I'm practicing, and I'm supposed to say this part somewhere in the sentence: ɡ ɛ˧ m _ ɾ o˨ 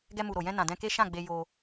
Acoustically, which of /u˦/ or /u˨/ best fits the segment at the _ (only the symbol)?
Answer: u˨